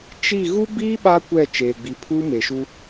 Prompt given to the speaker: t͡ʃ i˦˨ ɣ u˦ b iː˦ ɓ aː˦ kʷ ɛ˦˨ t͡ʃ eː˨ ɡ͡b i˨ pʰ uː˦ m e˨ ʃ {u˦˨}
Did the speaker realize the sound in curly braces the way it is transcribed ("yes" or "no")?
no